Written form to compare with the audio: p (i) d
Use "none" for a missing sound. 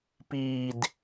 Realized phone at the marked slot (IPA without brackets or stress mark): iː